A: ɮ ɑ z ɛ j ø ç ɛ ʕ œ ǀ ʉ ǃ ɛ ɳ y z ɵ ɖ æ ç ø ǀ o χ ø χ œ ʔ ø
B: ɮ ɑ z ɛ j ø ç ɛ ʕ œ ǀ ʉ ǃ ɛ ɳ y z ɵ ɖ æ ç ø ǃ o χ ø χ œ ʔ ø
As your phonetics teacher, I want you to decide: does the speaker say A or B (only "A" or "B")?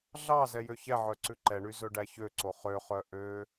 A